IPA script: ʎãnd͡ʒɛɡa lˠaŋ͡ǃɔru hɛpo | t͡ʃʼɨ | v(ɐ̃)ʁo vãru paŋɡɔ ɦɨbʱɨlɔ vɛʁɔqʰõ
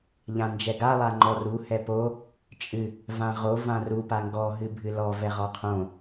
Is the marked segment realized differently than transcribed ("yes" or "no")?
yes